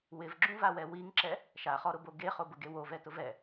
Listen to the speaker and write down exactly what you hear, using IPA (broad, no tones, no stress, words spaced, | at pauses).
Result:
wɪvɡ͡ǁũvawɛ wiŋǁɛ | ʃaχɔɾʊbo ɡeχobʊɡe wovɛtʊv ɛ